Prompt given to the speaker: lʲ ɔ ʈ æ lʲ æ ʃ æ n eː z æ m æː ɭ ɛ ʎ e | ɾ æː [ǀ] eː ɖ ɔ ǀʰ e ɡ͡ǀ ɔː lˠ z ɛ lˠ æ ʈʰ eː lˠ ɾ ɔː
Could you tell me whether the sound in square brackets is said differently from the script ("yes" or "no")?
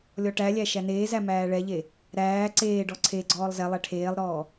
no